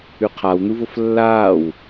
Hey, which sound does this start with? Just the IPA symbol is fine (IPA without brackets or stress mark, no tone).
ʉ